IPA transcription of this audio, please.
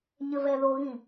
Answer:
ɲɘvɛðoɣĩ

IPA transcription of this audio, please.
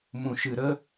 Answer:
mũ˨ʃɨ˨ɾə˦

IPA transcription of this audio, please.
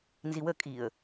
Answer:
nziwə kʼiə̯

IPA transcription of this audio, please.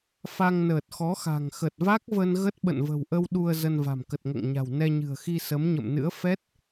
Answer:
fa˧ŋnəː˨˩t̚xɔ˨˦xa̤˨˩ŋ xə˨˩t̚va˦˥k̚və˧n ɣə˦˥t̚ɓə̰˧˨nvə̤˨˩wʔə˧w ɗu˧ə̯ zə˧n va̤˨˩mkə˨˩t̚ŋə̰ː˧˨ŋɲa̤˨˩w nɛ˧ɲɨ̤˨˩ə̯xi˧ sə˨˦mɲə̰˧˨mnɨ̰˧˥ə̯ fɛ˦˥t̚

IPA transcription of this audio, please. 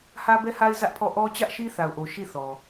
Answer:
hä˦bɛ˦ha˦ɪ̯ zä˦ʔpʰɔ˦˨ ʔɔ˦t͡ɕä˦ʔ ʃi˦θa˨ʊ̯ʔo˨ ʃi˦˨θɔ˨

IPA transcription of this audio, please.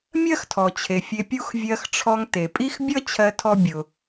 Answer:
mʲɜ˥xtʰɔ˩t͡ɕʰe˩ fʲe˧pʲu˥x vʲɜ˧xʈ͡ʂʰɔ˧ŋ te˩pʼi˥xbʲʌ˥t͡ɕʰɜ˧ tʰɔ˥bʲʊ˩

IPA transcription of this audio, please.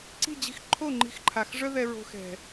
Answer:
ǀi̤˦˨d͡ʑi̤˧xǃʰo˦˨ ŋ͡ǃi̤˧xǃʰa˨x ʐœ˦ðɛ˧ ɹo̤˧xɛ̤˨

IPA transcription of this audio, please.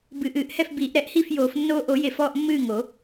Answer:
bɨ˨˩˦ʔɨː˨˩˦ʔhɛ˥˩f biː˨˩˦ʔɾɛ˨˩˦ʔ hi˥˩fjoː˨˩˦fnːoː˦ ʔo˨˩˦je˨˩˦f ɔː˦ʔmːɨː˥˩ ŋo˨˩˦

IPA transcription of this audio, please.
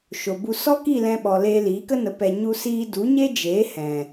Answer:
ʃo˨bu˧ sɔ˦ki˦˨ lɛ̃˧ɓɔ˨ leː˧liː˨˦kə˦nə˨˦ pɛ˧ ɲu˦siː˦ du˨˦ɲe˦d͡ʒeː˨˦hɛ̃˨

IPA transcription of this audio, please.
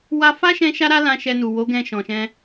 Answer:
wa˧fa˦ʃɛ̃˧ ʃa˦ɾa˦lã˧ ʃɛ˧nu˨ wo˨˦ɡɛ̃˧ ʃɔ̃˨ʃɛ̃˧

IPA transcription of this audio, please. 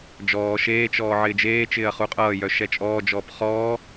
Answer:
d͡ʒɔː ʃeːt͡ʃɔː ʕɪːd͡ʒeːt͡ʃɪːɐ̯ χuqʼʌːjœ ʃɛt͡ʃʼɔːd͡ʒɔːp χɔː

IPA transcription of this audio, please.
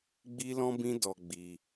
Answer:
ɡ͡bi˦lɔ̃˦bĩ˦ dɔ˧ɡ͡bi˧

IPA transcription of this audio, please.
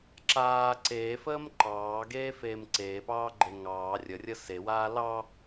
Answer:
ǁaː ǀeːfəːm ǃɑːɡeːfeːm ǀeːpɑːɡ͡ǃe ŋɑː rʲərʲə sewaː lɑ

